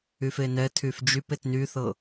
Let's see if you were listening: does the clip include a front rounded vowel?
yes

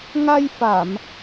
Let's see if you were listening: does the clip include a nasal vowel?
no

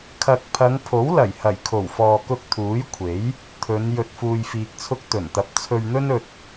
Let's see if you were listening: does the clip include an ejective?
no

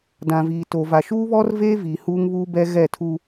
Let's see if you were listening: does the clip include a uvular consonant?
no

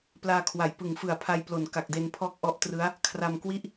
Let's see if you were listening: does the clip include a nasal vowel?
no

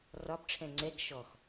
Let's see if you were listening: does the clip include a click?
yes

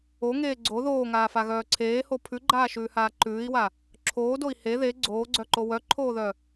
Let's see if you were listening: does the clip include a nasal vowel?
no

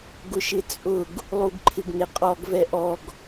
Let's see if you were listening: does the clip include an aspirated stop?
yes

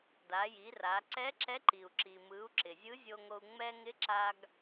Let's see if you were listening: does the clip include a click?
yes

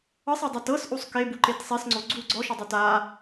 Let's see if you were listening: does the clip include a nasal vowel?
no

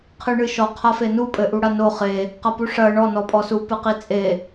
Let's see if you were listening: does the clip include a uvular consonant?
yes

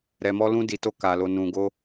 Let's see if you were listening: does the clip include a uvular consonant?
no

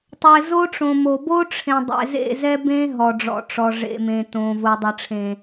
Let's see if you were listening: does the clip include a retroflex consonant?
yes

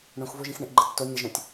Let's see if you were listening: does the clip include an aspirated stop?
no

